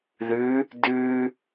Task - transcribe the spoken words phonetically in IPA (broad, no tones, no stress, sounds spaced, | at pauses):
ð ʉ | d ʉ